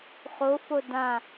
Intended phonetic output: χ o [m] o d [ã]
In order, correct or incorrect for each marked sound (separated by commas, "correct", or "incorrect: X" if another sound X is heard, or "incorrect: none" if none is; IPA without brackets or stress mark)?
incorrect: f, correct